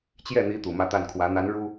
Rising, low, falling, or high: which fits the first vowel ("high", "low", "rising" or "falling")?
falling